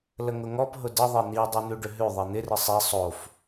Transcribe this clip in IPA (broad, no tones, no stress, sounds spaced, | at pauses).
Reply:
l ə ŋ ʊ ŋ ɔ p ɦ ʊ d ə ðˤ e n̪ i dˤ o n̪ ʉ ɖ ʏ ɦ ʉ ðˤ ɛ n̪ ɪ r ɪ sˤ i sˤ o f